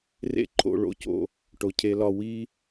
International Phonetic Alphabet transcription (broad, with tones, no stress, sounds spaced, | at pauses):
r ḛ˦ ǃʰ o̰˧ ɭ o̰˧ c o̰˦˨ | ʈ o˨ cʰ e˧ l ɒ˧ w i˦